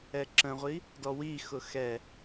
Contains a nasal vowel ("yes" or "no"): yes